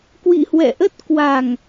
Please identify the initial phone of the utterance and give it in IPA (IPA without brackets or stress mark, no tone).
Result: k